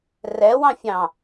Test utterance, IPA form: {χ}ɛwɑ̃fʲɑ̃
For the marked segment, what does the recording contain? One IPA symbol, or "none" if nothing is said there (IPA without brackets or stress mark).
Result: r